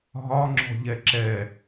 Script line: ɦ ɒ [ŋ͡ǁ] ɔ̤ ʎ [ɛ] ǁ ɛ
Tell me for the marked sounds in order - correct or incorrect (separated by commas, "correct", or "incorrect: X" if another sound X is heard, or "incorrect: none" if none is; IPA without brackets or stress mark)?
correct, correct